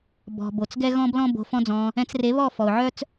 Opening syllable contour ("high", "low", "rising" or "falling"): low